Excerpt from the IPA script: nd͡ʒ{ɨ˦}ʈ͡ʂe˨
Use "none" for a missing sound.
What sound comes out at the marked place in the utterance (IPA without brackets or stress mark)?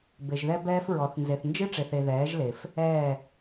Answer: ɨ˦